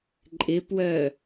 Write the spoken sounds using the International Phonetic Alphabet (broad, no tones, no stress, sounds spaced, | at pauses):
ǃʼ ɪ p w œ